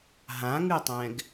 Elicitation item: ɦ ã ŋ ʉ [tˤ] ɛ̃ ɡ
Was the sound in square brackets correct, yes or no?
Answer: yes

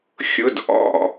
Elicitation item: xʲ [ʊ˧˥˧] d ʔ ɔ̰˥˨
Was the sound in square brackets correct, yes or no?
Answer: yes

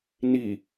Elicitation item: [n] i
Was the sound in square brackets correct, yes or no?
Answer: yes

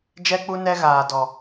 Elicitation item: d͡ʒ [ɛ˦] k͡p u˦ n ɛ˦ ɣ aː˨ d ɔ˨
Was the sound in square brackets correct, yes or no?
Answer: yes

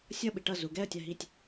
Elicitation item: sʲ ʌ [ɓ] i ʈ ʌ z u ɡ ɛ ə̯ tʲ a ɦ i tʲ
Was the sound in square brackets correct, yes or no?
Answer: yes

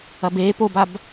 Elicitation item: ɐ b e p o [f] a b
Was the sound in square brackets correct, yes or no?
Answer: no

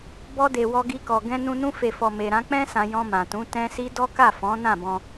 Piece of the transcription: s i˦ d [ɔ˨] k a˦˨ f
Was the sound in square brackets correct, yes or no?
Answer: no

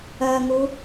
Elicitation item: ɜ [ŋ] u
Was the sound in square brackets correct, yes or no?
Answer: yes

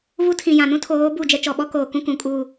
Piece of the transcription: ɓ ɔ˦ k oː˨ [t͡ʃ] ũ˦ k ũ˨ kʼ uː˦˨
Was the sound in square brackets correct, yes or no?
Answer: no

